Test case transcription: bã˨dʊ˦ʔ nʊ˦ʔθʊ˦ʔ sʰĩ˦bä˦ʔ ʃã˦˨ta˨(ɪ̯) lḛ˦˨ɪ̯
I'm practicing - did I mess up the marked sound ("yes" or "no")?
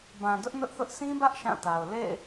yes